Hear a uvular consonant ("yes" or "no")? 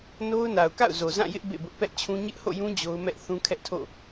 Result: no